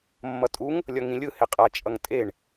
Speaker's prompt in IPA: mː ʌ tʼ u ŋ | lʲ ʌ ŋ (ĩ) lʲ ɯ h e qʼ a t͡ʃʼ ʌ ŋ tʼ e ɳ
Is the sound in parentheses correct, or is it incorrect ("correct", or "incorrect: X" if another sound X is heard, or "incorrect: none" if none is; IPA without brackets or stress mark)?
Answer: correct